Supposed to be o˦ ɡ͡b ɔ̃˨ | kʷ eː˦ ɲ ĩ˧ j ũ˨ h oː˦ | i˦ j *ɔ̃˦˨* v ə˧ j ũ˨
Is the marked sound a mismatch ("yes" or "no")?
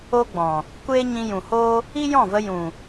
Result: no